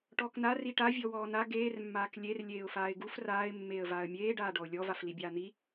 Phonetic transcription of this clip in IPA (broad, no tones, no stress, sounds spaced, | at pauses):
ʈ ɔː k n a r i ʈ a vʲ ɔ w ɔː n a ɡ eː r mː aː k lʲ e r lʲ eː ʊ̯ f aː ɪ̯ ɡ u f r aː ɪ̯ mː eː ə̯ v aː ə̯ mʲ eː ɖ aː ɖ ɔ ʊ̯ lʲ ɔ v a f l i bʲ aː n̪ i